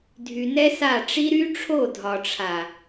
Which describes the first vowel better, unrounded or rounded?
rounded